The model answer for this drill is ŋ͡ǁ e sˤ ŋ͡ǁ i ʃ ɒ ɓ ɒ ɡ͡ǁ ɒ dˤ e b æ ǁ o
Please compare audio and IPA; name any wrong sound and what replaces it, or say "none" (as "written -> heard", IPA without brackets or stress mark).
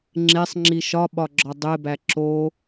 none